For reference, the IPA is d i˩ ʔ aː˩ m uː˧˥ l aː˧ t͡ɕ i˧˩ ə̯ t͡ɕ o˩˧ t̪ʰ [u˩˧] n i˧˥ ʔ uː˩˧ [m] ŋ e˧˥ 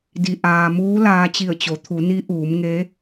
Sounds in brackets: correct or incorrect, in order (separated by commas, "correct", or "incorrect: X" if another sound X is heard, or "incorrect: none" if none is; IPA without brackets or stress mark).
correct, correct